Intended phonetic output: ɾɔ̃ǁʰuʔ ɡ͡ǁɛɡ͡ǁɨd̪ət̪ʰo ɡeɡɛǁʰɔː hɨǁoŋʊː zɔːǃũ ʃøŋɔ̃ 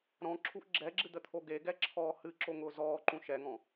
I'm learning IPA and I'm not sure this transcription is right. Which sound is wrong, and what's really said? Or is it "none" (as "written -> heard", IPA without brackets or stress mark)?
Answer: ø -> ɛ